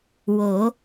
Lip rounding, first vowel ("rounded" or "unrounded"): rounded